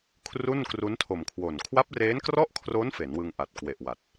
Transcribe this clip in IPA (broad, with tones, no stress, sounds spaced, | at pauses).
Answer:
kʰ r u˥˩ n k r u˦˥ n tʰ o˨˩ m kʰ w o˨˩ n kʰ w a˦˥ p̚ r e˦˥ n k r ɔ˥˩ ʔ kʰ r o˦˥ n f e˩˦ n w ɯ˧ ŋ ʔ a˨˩ t̚ k w e˨˩ ʔ w a˨˩ t̚